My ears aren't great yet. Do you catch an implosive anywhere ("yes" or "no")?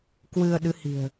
yes